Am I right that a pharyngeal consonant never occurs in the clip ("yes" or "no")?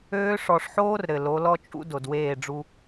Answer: no